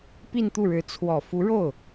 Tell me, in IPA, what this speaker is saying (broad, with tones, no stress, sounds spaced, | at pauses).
p i˥˧ n t̪ u˥˩ ɻ ɻ̩˧˥ t͡sʰ w ɔ˨˩ f u˧˥ ɻ o˥˩ ʊ̯